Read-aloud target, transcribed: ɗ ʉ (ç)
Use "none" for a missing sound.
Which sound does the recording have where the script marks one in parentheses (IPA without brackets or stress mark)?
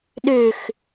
x